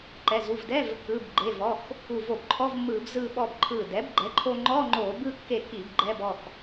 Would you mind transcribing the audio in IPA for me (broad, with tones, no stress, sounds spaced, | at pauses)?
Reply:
ǃ ɛ˩˧˩ z u˩˧˩ v d ɛ˧˥˧ v | ɯ˩˧˩ b ɡ͡ǃ e˩˧˩ v ɔ˩˧˩ x | u˧˩ v o˧˩ b ǃʰ ɔ˧˥˧ v mː ɯː˧˩˧ b z ɯː˧ ɓ ɔ˧ b ǃʰ ɯː˧˩ d ɛ˩˥ b ɡ͡ǃ ɛ˩˥ ǃʰ o˧ ŋ͡ǃ ɔ˧˥˧ ŋ͡ǃ oː˧˩˧ b ɯ˧ kː e˧˩ k i˧˩˧ b ɡ͡ǃ ɛ˧˥˧ b ɔ˩˧˩ x